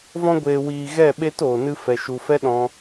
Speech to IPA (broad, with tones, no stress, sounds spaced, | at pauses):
v ɔ̃˧ ɡʷ eː˨ w iː˨ ɣ ɛ˦˨ ɓ e˦ t oː˨ n ɨ˧ f ɛ˨ ʃ u˨ f ɛ˦ ɗ ɔ̃˦